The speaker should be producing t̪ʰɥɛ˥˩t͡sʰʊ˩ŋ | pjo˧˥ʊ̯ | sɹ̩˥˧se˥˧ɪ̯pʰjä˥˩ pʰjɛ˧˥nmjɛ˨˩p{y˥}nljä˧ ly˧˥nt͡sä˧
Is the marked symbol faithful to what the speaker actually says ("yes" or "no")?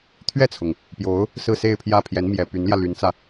no